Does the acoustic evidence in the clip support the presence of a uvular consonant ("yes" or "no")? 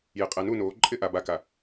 yes